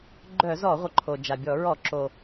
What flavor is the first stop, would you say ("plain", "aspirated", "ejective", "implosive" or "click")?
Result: click